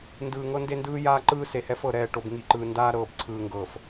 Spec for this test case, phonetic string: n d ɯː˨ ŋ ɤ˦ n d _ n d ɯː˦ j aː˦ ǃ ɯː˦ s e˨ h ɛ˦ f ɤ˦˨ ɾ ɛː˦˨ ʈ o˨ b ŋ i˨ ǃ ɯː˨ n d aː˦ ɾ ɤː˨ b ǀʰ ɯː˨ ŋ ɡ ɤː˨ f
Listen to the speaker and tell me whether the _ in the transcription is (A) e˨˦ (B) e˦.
B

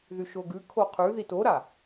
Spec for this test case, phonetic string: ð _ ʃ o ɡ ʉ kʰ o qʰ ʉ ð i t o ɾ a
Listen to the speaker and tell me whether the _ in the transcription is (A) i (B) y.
B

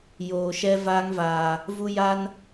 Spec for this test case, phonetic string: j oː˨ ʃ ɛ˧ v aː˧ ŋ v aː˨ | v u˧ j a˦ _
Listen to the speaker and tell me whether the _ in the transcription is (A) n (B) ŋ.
A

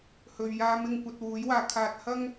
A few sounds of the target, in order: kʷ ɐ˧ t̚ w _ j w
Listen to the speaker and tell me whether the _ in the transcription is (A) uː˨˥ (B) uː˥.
A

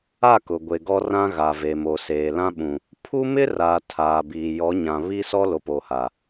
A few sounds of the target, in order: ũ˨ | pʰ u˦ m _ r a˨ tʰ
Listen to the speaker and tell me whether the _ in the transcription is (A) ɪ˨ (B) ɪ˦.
B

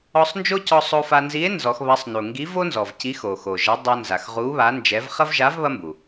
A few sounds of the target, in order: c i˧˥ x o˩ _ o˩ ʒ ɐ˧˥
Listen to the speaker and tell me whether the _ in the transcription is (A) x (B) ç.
A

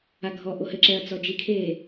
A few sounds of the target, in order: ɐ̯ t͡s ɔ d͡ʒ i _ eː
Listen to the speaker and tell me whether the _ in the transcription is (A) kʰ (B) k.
A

